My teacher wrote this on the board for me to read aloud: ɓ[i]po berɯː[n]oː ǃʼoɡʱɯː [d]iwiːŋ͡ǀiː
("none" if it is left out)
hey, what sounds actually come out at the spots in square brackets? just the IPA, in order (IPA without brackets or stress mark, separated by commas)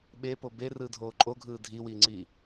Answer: e, dʱ, dʱ